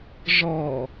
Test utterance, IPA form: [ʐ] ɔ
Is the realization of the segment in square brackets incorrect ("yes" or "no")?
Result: no